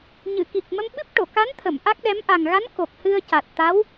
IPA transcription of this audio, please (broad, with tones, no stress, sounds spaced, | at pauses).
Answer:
ɲ ɨ˨˩˨ k i˨˩ k̚ m ə˧ m ɓ ɨ˦˥ p̚ ʈ o˨˩˨ k a˧˥ n t̪ʰ ə˨˩˨ m ʔ a˦˥ k̚ ɗ ɛ˧˥ m ʔ a˨˩ ŋ ɣ a˧˥ n k o˨˩ k̚ h ɨ˧ ə̯ c a˨˩ t̚ t̪ a˧˥ w